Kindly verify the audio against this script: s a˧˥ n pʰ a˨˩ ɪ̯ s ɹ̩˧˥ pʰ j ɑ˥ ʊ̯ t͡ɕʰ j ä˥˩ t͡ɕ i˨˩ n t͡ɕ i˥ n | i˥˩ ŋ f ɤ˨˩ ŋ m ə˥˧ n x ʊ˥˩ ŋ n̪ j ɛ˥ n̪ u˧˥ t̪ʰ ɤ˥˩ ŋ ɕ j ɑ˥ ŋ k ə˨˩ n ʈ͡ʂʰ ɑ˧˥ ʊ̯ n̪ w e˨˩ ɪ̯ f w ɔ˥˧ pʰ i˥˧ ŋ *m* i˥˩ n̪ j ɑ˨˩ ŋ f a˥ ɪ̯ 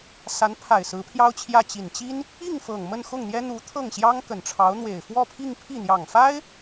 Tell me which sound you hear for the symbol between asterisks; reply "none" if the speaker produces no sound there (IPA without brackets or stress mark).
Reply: pʰ